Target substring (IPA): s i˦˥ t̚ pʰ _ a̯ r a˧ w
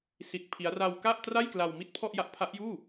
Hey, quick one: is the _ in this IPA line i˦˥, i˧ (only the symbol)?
i˦˥